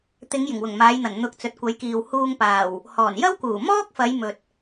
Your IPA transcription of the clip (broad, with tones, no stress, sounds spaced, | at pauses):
t̪ ɪ˨˧ ŋ j ɪ˨˩ ŋ w ʊ˨˩ ŋ m aː˨˧ j n̪ ɐ˨˩ n n̪ ʊ˨˥ k̚ t͡s ɵ˨ t̚ kʷ ɐ˨˥ j k iː˨ w h uː˧ ŋ p aː˨˩ w | h ɔː˨˩ n j ɐ˥ w k uː˨˩ m ɔː˥ k̚ f ɐ˨˧ j m ɵ˨ t̚